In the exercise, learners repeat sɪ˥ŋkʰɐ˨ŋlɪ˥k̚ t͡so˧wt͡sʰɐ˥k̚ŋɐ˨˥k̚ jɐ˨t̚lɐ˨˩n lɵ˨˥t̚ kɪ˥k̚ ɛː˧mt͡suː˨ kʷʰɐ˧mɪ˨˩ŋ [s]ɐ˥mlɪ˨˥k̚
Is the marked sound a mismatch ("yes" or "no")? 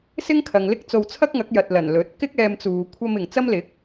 yes